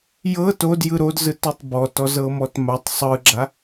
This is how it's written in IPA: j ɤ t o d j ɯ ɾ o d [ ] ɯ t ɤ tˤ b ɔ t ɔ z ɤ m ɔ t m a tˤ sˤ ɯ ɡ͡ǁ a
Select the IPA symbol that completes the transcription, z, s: z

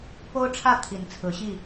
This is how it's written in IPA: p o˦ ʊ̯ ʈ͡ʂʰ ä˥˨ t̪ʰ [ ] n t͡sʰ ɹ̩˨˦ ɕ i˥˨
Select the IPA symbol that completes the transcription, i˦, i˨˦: i˨˦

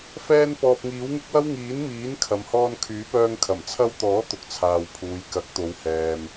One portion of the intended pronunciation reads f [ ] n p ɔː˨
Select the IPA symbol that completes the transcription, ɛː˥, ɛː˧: ɛː˧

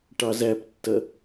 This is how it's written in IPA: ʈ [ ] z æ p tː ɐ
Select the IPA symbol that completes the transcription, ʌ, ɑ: ɑ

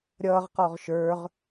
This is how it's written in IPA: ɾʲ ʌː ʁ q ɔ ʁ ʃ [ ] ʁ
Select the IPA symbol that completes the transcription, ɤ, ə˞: ə˞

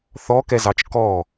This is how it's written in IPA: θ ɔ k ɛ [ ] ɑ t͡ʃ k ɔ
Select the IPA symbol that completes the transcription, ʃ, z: z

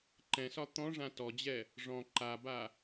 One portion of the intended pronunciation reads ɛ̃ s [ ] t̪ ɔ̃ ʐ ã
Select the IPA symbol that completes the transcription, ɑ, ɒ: ɒ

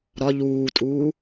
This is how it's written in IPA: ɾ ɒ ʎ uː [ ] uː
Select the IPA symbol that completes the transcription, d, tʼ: tʼ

